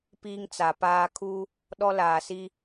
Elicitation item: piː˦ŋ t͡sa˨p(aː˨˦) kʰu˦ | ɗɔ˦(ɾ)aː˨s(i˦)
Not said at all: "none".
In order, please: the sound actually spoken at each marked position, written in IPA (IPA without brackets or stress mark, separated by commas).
aː˦, l, i˦